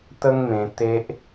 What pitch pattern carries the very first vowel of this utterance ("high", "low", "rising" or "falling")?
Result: high